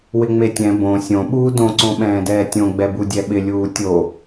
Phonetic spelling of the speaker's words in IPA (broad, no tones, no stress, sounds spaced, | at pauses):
w ɪ ŋ͡m e tʲ ɛ̃ b õ sʲ õ ɓ uː d õ ǀ õ ɓ ɛ̃ː d ɛː tʲ õ ɡ͡b ɛ b u dʲ ɛ ɓ ɪ lʲ uː tʲ o